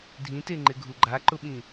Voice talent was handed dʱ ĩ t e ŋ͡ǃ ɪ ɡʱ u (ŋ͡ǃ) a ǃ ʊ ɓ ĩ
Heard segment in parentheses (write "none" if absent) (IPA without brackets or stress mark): ɡ͡ǃ